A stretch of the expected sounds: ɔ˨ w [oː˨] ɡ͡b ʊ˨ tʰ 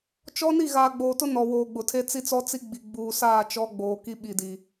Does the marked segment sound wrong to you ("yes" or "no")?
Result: no